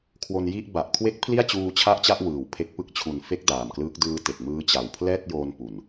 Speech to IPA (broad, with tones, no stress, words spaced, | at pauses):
kʰwo˧nji˥˩ʔ ba˨˩ʔkʰwe˦˥k̚ pʰli˥˩a̯t͡ɕuː˧ t͡ɕʰa˥˩ʔt͡ɕa˥˩ʔ wɯː˩˦wpʰe˦˥k̚ pɯ˦˥k̚t͡ɕʰu˨˩nfe˦˥k̚ daː˨˩mklɯː˦˥k̚ dɯː˧ te˨˩k̚mɯː˦˥t͡ɕa˨˩w pʰlɛː˥˩t̚joː˧n pu˨˩n